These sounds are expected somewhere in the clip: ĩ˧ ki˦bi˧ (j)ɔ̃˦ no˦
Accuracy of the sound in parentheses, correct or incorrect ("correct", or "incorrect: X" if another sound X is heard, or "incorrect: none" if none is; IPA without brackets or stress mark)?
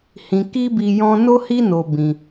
correct